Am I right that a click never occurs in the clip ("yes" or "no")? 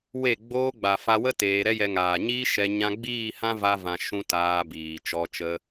yes